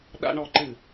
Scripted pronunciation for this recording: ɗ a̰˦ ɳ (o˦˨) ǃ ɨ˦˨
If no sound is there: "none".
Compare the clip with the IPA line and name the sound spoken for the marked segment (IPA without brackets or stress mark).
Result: ɔ˦˨